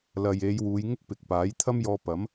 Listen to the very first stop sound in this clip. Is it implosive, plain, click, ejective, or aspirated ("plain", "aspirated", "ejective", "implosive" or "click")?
plain